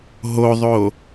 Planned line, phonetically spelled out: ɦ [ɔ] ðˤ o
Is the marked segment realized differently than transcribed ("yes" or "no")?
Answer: yes